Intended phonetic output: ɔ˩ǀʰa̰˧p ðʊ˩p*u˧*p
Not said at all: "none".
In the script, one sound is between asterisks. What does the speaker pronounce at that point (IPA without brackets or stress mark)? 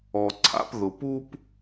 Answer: u˧